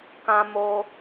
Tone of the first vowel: high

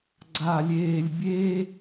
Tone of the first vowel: low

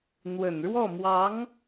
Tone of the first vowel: low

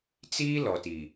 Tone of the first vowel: high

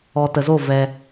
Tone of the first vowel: low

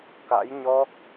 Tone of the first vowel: rising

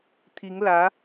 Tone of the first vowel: rising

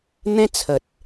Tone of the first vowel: high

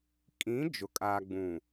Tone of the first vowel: rising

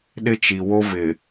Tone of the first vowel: high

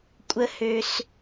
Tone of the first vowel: high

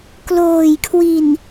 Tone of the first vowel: low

